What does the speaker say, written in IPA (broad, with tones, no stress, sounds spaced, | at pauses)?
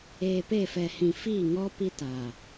eː˨ p e˦˨ f ɛ˨ h ĩ˨ f iː˦˨ ŋ ɔ˦ p i˦ t a˨